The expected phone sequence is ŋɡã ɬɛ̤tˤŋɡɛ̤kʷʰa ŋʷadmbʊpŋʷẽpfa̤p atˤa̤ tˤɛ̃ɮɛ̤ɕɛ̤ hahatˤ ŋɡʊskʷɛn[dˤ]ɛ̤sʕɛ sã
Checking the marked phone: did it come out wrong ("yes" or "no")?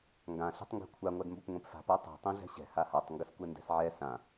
yes